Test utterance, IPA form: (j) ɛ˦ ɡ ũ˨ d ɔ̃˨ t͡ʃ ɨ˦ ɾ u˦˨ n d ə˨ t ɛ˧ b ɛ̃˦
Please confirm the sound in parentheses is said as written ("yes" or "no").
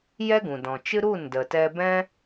yes